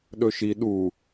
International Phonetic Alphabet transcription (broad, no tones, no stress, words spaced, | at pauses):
ɗɵʃi ɗu